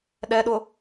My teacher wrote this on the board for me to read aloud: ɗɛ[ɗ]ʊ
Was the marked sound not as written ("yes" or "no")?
no